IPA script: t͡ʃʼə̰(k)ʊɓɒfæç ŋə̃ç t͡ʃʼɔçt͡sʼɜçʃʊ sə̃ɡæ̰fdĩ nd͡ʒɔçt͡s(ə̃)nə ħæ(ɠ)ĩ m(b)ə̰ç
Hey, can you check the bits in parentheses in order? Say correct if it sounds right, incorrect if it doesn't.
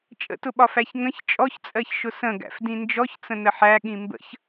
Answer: incorrect: t, correct, correct, correct

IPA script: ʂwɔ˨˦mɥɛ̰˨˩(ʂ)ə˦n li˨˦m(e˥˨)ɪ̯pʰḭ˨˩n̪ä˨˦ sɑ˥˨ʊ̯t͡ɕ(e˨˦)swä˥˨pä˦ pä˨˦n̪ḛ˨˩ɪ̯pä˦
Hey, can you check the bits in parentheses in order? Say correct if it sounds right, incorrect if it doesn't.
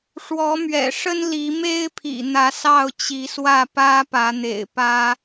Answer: correct, incorrect: e˦, incorrect: i˨˦

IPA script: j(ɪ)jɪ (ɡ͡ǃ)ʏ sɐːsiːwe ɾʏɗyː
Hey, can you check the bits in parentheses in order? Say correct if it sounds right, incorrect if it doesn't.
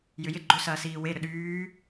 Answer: incorrect: ʏ, correct

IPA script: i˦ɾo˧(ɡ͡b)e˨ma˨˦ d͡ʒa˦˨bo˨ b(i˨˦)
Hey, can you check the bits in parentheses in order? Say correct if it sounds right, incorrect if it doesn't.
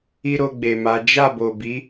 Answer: correct, correct

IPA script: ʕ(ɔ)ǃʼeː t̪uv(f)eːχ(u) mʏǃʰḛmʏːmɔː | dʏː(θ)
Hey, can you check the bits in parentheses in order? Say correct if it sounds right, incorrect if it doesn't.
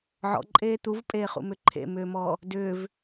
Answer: incorrect: ɔ̰, incorrect: pʼ, incorrect: ṵ, incorrect: v

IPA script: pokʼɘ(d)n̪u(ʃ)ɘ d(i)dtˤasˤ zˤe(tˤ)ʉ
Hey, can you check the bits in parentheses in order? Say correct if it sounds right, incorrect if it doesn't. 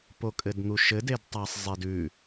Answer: correct, correct, incorrect: e, incorrect: d

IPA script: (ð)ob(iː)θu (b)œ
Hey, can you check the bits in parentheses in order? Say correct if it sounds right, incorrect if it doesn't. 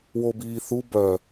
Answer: incorrect: w, correct, correct

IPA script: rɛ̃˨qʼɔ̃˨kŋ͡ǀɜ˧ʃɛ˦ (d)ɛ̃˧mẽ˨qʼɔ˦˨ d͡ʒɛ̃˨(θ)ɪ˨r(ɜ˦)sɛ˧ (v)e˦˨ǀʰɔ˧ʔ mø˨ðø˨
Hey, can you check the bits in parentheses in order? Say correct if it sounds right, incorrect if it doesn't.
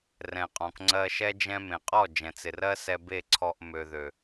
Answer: incorrect: d͡ʒ, incorrect: t͡s, correct, incorrect: b

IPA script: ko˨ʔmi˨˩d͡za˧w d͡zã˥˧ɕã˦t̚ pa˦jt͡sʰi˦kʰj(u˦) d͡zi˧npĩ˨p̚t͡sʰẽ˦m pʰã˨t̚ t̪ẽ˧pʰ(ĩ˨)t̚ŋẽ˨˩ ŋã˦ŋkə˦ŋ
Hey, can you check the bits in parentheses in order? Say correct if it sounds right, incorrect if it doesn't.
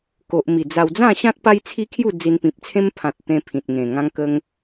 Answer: incorrect: u˥˧, correct

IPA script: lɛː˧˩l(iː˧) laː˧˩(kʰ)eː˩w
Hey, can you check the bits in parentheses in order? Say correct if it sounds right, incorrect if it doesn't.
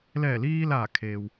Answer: correct, correct

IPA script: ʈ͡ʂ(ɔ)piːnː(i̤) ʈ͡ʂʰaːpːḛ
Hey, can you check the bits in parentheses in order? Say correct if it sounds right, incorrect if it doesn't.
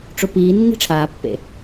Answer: incorrect: o, correct

